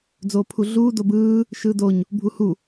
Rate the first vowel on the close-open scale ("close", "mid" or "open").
mid